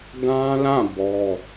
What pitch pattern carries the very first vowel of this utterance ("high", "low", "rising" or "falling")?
high